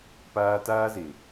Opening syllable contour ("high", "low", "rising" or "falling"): high